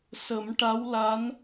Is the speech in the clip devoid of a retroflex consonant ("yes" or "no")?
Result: no